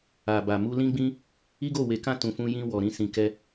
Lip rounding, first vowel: unrounded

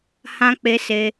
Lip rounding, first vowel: unrounded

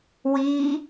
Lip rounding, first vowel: unrounded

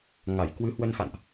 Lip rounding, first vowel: unrounded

